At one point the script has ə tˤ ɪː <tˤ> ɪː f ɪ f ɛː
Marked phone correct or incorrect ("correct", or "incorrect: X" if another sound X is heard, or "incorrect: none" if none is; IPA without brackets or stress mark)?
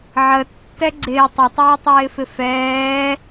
correct